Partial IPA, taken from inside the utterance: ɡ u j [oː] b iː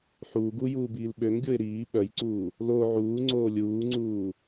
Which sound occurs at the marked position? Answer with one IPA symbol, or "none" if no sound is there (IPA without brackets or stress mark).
uː